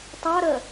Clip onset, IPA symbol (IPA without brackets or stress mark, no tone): tˤ